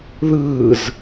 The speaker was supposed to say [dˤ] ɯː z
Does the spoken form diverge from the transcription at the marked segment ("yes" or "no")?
yes